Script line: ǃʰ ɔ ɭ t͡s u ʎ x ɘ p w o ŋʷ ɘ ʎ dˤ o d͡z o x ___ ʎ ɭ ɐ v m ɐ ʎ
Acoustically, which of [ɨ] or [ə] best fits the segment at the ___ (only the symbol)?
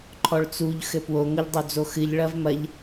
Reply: ɨ